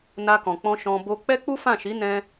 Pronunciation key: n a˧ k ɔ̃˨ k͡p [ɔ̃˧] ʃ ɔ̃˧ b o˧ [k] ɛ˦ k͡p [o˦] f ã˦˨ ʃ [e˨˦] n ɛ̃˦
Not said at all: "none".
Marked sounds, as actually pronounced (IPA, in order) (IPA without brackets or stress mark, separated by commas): ɔ̃˧, k͡p, u˦, i˨˦